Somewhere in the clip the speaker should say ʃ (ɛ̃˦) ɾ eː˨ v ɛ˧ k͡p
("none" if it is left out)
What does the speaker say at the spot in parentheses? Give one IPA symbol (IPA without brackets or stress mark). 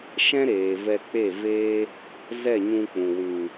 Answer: ɛ̃˦